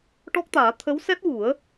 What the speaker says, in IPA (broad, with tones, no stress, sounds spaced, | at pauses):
ʈ ɔ˦˥ k̚ t̪ aː˨˩˦ t̪ʰ ə˧˥ w s ɛ˦˥ t̚ w u˨˩˦ ə̯